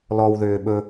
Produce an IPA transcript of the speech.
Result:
l ɔ w ð ʏː ɓ ɵ

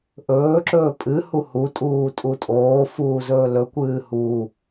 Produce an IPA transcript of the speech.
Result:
ʔ ɵː ǁ ɵː pʼ ɨ h u h u tʼ uː tʼ u tʼ oː f uː z ɵː l ɵ kʷ ɨː h u

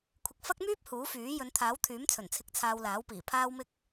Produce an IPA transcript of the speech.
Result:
kʷʰ ɪ˧ k̚ f ɐ˥ k̚ m yː˥ p̚ h uː˨˥ f yː˨˥ j ɵ˨˧ n t̪ʰ aː˨˥ w t̪ʰ yː˨˥ m t͡sʰ ɵ˨˩ n t͡sʰ ɪ˨˥ k̚ t͡sʰ aː˧ w l aː˨˥ w p iː˨˩ pʰ aː˧ w m ɪ˧ k̚

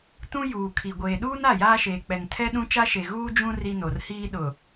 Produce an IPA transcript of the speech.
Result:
t ũ˦ j uː˨ kʰ i˨ ɡʷ eː˨ ɗ uː˦ n a˦˨ j aː˦ ʃ eː˨ k͡p ɛ˨ ŋ tʰ ɛ˦ ɗ ũ˦ t͡ʃ a˦ ʃ e˨ ɣ uː˦ d͡ʒ ũ˦ r i˦ n o˨ r h iː˦ ɗ ʊ˨

